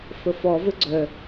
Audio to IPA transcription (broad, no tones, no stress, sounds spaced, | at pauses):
f ə f ɔ v ɘ ɡ͡ǀ œ